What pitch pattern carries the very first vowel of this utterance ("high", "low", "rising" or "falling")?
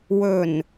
low